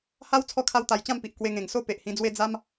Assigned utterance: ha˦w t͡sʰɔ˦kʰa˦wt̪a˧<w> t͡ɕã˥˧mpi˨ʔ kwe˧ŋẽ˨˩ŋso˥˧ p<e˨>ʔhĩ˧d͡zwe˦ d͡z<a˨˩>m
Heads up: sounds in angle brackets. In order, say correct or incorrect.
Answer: incorrect: j, correct, incorrect: a˦

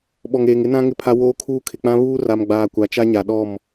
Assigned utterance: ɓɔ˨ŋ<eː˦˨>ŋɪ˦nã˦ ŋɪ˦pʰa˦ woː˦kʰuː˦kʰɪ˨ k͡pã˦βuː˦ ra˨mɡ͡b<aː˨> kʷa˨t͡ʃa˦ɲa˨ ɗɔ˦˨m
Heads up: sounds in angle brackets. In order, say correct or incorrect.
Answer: incorrect: eː˨, correct

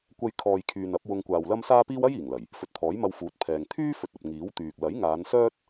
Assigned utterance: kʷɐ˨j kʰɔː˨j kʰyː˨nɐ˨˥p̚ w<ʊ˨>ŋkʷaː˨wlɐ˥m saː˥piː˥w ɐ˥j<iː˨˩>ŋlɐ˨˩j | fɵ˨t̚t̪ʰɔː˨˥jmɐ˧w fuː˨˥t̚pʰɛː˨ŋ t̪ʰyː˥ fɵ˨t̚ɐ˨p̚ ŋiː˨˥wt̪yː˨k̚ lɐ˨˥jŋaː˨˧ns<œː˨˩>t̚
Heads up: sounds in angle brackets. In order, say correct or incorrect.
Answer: incorrect: ʊ˧, correct, incorrect: œː˥

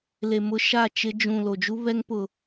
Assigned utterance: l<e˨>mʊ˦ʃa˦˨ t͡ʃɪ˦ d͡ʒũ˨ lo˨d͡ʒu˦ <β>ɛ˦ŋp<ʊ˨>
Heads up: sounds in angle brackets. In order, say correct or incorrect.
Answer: correct, correct, correct

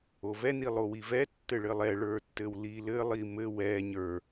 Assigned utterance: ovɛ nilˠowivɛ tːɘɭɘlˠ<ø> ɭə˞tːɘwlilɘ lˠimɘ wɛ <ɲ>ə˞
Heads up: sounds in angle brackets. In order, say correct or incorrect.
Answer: incorrect: ɛ, correct

